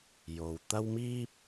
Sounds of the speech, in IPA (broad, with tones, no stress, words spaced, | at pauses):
jo˧w t̪ɐ˥wmiː˥p̚